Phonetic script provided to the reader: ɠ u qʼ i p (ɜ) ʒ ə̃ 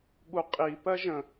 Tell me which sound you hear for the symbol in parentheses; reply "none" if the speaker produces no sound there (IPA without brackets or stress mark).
ɜ